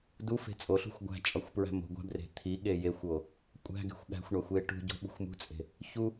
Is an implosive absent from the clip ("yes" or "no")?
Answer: no